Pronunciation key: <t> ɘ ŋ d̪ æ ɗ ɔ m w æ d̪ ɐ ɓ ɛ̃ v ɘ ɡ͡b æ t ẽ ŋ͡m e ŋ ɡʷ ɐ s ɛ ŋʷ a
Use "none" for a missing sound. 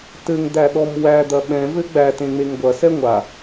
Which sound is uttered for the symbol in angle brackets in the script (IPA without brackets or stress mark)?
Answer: t